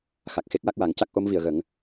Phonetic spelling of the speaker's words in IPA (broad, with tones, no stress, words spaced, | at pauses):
xa˨˩k̚ xe˦˥k̚wa˦˥k̚wa˨˩˦ŋ ca˦˥k̚ʔo˧˥mvi˨˩˨ə̯ɣə˨˩˦ŋ